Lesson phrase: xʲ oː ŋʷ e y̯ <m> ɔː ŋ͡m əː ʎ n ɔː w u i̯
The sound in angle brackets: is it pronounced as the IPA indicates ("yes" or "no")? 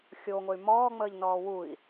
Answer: yes